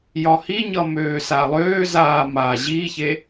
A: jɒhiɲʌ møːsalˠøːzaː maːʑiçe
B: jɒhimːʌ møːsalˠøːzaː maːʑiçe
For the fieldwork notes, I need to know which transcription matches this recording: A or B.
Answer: A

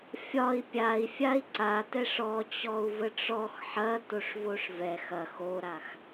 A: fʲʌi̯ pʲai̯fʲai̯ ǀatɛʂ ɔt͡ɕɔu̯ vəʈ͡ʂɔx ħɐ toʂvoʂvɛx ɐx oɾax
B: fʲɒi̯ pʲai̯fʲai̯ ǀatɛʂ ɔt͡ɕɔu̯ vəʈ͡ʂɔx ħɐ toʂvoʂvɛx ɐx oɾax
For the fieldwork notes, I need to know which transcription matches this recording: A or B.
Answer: B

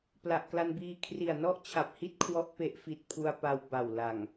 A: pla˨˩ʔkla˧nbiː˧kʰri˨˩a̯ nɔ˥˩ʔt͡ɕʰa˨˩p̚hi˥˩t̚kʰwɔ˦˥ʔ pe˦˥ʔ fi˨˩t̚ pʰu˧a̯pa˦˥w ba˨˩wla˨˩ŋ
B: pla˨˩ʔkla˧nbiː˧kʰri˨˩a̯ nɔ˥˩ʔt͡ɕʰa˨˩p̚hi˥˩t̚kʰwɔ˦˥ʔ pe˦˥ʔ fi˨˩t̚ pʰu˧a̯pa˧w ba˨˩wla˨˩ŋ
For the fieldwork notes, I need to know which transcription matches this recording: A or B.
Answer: B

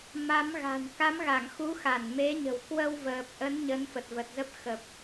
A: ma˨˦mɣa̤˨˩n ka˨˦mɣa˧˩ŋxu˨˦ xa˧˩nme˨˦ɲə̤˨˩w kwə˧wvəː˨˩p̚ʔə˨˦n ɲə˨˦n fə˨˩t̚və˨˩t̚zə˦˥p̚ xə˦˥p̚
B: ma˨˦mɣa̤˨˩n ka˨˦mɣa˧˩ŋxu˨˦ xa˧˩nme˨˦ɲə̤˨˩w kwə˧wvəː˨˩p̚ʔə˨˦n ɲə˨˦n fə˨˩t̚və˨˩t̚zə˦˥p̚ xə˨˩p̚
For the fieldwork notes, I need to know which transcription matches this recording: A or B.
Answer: B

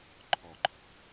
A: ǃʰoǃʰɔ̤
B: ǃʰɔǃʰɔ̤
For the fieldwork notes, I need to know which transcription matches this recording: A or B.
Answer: B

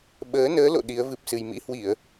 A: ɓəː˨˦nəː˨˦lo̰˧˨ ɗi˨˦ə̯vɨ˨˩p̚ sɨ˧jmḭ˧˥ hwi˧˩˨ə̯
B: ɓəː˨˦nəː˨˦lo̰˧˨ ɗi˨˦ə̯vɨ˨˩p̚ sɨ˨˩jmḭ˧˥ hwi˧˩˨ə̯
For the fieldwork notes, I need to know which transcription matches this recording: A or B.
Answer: B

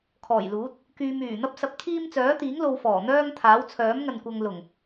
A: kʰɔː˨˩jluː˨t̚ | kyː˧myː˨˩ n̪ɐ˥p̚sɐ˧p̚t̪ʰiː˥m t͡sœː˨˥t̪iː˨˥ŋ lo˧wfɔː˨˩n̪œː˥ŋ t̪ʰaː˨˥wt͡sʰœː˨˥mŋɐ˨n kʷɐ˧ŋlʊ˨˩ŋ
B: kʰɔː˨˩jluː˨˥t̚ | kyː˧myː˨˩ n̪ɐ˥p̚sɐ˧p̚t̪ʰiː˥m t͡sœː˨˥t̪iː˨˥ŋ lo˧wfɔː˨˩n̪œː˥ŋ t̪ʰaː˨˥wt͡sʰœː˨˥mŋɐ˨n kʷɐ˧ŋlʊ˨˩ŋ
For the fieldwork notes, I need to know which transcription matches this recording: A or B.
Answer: B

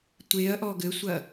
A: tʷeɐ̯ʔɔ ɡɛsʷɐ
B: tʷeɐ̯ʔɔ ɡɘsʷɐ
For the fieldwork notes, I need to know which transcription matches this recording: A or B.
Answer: B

